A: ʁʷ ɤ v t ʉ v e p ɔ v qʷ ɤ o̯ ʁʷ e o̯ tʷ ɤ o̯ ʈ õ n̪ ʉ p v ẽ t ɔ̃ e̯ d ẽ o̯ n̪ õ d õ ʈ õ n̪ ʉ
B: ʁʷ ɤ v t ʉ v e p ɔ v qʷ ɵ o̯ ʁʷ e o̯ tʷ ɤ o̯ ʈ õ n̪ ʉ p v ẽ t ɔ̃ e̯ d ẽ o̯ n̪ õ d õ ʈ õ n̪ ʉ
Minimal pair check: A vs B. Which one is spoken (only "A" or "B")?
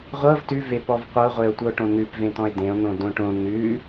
A